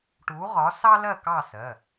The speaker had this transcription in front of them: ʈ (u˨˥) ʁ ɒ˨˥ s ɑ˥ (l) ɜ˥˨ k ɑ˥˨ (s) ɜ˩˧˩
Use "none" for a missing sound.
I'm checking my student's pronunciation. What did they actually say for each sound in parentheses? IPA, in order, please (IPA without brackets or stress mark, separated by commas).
u˨˥, l, s